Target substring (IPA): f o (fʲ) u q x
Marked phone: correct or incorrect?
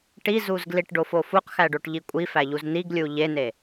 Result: incorrect